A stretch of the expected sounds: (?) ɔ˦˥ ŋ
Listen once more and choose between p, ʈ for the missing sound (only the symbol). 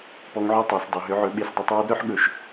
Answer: p